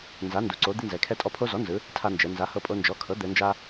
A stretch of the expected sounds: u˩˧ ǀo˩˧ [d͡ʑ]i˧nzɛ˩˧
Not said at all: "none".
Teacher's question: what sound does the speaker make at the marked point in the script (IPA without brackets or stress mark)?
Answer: d̪